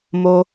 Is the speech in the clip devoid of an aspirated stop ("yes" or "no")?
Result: yes